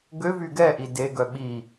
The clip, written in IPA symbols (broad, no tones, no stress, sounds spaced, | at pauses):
ɡ ø v y ɡ ɛ ʔ i d e ɡ œ ɓ i